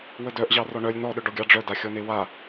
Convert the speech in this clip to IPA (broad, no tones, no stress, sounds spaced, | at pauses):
w ə d œ ʔ ʑ ɑ r ɔ ɳ œ lʲ n ɔ ɗ œ ɖ ɔ ɡʲ ɑ ɖ͡ʐ œ d a xʲ ɔ n e w a